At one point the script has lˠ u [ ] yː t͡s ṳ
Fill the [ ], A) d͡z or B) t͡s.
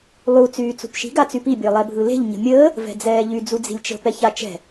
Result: B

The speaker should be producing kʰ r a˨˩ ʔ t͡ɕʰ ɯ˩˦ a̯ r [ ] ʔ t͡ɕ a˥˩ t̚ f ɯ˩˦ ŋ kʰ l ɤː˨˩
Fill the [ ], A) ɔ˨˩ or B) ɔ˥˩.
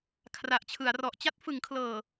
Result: A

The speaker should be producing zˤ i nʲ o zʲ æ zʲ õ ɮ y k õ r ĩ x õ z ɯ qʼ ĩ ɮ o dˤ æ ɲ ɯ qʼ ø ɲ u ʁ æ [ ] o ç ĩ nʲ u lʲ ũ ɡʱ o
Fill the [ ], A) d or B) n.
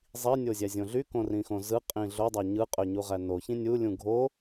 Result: B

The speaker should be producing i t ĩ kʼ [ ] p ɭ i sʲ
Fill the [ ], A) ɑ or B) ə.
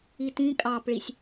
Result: A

